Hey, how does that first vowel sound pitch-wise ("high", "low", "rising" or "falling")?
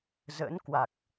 rising